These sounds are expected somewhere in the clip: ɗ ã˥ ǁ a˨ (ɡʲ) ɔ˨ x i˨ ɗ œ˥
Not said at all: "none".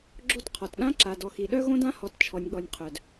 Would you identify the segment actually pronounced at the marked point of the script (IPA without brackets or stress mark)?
d